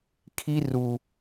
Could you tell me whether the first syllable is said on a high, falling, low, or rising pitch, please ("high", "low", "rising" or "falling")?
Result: high